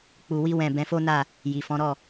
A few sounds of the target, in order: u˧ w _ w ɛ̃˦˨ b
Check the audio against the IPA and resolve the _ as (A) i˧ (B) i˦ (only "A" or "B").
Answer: B